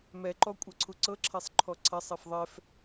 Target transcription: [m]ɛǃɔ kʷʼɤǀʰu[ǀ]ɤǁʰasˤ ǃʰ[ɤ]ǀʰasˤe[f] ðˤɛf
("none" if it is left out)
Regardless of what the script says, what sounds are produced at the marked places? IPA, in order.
m, ǀ, ɔ, f

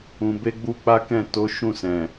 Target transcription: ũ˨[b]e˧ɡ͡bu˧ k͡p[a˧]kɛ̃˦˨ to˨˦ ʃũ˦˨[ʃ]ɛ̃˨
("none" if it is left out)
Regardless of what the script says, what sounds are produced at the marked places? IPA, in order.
b, a˦, s

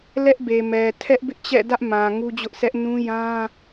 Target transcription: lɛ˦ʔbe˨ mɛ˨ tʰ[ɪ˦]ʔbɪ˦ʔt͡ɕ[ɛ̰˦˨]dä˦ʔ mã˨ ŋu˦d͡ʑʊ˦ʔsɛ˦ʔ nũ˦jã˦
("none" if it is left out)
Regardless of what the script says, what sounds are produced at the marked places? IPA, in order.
ɛ˦, ɛ̰˦˨

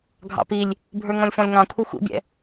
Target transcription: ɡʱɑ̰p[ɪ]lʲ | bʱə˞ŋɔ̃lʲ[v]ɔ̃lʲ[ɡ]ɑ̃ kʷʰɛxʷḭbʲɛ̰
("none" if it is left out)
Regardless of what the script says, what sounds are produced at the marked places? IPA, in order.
i, f, ŋ

